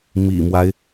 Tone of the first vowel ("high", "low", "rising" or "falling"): low